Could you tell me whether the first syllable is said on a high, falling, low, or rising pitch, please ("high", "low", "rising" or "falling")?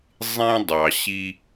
high